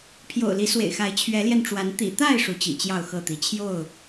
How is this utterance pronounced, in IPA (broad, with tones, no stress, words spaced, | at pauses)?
pʰjo̰˨˩ʊ̯li˨˦swḛ˨˩ɪ̯xa˨˦ɪ̯ t͡ɕʰɥɛ˨˦ljɛ˧nʈ͡ʂwa˨˦n t̪ḭ˨˩t̪a˥˨ɪ̯ ʂu˨˦t͡ɕḭ˨˩ t͡ɕjɑ˥˨ʊ̯xɤ˥˨t̪i˨˦ t͡ɕʰjo˥˨ʊ̯